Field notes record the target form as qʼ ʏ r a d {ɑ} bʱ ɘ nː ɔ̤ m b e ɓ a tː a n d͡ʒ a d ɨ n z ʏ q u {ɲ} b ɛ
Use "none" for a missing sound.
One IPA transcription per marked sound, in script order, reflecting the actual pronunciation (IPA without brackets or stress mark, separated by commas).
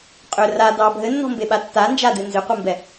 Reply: ɑ, m